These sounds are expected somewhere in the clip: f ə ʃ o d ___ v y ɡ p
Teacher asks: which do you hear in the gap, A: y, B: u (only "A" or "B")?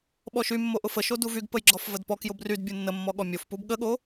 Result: B